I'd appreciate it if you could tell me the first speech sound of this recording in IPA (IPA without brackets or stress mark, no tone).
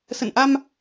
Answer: s